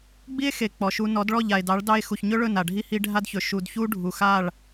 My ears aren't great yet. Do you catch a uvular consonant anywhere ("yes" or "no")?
no